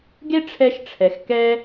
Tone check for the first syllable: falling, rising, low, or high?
high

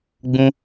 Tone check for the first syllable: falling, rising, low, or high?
high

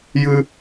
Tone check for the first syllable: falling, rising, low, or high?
low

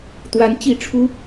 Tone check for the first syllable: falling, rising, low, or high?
rising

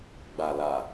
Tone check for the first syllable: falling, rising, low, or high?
low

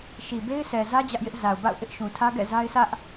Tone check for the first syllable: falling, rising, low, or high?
low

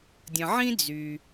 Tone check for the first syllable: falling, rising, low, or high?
low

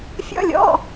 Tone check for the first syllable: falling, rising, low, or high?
high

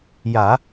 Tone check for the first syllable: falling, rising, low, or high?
low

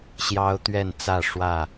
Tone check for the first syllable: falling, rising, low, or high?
high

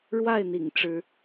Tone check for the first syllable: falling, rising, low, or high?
falling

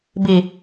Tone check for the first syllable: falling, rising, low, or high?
low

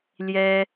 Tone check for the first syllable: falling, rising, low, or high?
high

